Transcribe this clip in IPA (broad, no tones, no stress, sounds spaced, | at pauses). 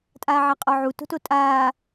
tʼ aː ʕ a qʼ ɔ ʕ u t o̤ t o tʼ aː